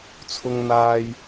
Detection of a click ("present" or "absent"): absent